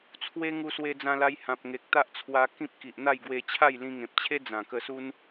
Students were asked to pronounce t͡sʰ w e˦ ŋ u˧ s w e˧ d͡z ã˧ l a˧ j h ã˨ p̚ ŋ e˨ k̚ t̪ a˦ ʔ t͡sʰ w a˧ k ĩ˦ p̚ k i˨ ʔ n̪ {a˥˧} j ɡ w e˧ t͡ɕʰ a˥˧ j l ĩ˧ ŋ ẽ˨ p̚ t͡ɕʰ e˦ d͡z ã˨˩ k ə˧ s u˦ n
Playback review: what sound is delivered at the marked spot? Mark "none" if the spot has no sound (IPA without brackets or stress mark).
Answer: a˥˧